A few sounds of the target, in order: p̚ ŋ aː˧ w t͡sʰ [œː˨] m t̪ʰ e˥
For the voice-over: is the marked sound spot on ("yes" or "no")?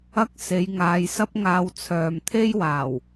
yes